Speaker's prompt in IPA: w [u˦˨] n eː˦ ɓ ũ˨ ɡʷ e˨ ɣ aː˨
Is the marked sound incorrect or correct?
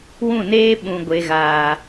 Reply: incorrect